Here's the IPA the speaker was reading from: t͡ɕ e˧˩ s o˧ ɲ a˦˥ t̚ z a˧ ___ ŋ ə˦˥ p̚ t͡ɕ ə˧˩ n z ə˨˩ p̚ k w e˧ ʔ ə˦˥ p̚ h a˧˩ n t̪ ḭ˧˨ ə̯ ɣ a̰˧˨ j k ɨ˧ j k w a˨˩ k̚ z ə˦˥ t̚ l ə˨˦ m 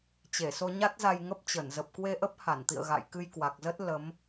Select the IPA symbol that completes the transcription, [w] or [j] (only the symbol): j